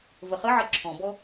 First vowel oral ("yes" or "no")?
yes